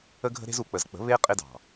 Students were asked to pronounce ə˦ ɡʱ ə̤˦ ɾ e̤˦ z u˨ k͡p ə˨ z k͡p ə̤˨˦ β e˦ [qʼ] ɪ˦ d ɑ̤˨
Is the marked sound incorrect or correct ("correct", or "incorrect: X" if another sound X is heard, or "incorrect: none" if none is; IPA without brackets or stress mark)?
correct